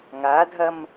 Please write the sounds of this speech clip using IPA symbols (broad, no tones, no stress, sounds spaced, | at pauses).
ŋ a dʱ ɐ m